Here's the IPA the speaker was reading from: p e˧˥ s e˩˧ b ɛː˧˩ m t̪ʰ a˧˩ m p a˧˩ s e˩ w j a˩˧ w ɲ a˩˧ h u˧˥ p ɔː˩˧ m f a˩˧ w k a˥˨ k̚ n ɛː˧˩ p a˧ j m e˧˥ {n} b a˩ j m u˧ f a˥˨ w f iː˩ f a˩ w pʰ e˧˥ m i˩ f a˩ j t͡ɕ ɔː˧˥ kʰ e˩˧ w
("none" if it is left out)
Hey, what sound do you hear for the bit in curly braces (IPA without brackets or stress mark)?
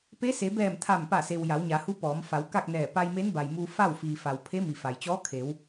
n